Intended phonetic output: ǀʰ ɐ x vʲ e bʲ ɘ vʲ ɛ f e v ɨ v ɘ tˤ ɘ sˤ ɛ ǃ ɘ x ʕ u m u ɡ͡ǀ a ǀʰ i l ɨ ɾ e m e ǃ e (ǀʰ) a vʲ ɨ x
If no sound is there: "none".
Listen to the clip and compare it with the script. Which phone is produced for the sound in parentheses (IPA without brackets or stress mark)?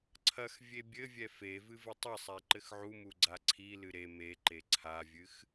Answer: ǀʰ